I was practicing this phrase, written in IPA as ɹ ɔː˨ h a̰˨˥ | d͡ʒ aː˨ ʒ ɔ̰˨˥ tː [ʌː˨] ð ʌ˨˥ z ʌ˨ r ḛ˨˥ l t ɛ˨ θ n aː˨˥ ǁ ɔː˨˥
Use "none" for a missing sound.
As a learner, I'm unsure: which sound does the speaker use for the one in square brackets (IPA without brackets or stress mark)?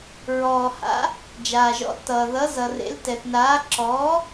ʌː˨